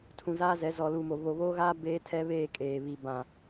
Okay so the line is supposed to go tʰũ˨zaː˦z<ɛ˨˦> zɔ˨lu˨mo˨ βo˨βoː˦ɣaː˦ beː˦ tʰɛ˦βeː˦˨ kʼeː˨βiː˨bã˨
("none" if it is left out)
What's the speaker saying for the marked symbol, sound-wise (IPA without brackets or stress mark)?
ɛ˨˦